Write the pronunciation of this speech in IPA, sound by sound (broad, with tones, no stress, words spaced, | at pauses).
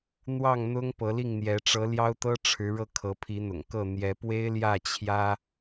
n̪wɑ˥˨ŋn̪ʊ˦ŋ pɤ˨˦li˥˨ŋn̪jɛ˨˦ ʈ͡ʂɤ˨˦ ljɑ˦ʊ̯t̪ɤ˦ ʈ͡ʂʰɻ̩˨˦ɻɤ˧ kʰɤ˨˦pʰi˨˦n̪ʊ̰˨˩ŋkɤ˥˨ n̪jɛ˨˦pwe˦ɪ̯ljä˥˨ t͡ɕʰjä˦